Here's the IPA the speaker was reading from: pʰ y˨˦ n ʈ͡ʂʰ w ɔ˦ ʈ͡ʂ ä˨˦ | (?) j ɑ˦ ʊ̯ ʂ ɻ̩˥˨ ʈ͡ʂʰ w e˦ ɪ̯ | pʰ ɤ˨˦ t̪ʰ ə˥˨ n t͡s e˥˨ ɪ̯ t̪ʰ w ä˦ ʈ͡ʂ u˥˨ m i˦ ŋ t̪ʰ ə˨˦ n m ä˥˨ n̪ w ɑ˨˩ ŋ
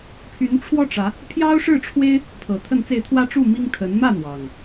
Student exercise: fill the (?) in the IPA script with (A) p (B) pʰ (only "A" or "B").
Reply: B